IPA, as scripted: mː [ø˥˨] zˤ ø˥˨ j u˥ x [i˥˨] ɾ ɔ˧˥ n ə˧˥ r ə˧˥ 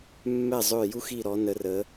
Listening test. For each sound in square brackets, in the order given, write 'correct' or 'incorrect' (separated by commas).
incorrect, correct